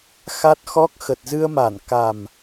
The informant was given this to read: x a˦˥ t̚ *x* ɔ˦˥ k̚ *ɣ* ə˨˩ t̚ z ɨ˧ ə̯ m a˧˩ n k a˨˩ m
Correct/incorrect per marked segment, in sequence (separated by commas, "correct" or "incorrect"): correct, incorrect